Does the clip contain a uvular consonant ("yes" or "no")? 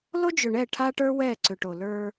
no